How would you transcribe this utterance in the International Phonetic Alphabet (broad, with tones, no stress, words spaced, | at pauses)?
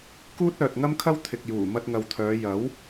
kuː˥t̚œː˨t̚ŋɐ˥mkʰɐ˥w t̪ʰɪ˨k̚juː˨˩ mɐ˧t̚ŋɐ˨wt̪ʰœː˨˧ jɐ˨˥w